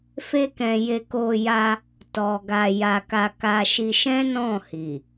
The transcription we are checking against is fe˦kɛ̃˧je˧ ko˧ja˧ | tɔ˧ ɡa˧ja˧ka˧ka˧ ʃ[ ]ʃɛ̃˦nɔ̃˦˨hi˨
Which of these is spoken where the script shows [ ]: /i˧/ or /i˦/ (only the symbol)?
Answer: i˧